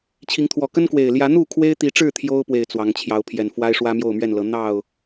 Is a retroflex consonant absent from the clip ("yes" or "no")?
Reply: no